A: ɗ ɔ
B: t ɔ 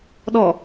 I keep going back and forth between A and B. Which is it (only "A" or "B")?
A